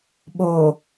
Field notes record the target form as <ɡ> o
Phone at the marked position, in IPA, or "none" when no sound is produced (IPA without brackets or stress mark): ɓ